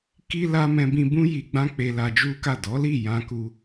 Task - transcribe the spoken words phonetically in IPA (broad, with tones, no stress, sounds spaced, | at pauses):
k i˦ l a˦ m ɛ̃˧ b ĩ˧ b ũ˧ j i˨ ɡ͡b ã˧ k͡p e˧ l a˧ d͡ʒ u˦ k a˦˨ d ɔ˨˦ l i˦˨ j ã˧ k u˦